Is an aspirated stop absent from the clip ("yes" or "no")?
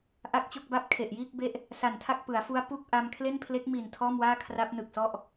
no